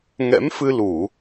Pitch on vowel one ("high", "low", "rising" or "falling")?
rising